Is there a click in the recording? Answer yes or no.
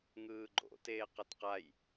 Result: yes